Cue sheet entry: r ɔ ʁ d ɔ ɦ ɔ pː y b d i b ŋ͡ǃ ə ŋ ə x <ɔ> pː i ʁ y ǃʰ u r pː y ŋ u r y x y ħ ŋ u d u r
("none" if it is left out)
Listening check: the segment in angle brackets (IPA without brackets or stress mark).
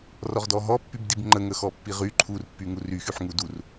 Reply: ɔ